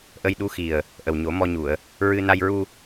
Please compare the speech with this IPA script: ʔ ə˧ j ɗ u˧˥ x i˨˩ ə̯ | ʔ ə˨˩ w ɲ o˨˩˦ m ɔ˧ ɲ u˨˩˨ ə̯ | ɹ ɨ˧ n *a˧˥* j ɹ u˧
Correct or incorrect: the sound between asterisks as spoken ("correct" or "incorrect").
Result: incorrect